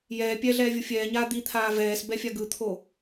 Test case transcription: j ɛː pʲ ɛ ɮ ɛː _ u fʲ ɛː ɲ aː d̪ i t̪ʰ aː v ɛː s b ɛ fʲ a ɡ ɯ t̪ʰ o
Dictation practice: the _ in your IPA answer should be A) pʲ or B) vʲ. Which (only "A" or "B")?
B